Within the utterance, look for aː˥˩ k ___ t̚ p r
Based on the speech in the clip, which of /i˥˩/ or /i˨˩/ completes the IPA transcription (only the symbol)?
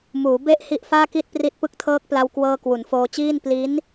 i˥˩